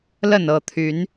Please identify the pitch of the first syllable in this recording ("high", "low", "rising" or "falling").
falling